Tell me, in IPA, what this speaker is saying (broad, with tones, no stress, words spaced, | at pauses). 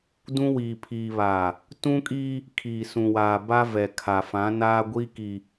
dũ˦wiː˨pʰiː˨ βa˨ | tũ˦kʼiː˦ | kʰiː˨sũ˨waː˨ ba˦vɛ˨kʰa˨ fã˨˦naː˦ ɡʷiː˦ki˨